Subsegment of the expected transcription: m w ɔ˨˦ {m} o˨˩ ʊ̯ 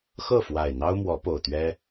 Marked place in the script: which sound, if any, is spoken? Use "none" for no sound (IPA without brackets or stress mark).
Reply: p